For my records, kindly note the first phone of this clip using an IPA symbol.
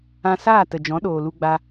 ã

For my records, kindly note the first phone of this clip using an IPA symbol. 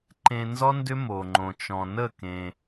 ǃ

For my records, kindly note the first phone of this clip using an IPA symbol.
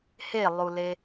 h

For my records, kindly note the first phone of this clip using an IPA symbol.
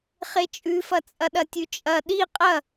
χ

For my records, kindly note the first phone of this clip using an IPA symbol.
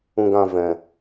ũ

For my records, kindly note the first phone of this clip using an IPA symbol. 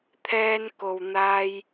t̪ʰ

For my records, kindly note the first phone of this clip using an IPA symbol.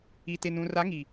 i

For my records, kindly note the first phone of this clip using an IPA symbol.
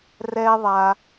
r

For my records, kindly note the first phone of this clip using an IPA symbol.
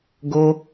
ɡ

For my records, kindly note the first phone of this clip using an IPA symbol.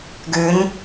ɡ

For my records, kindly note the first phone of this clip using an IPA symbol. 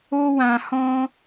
o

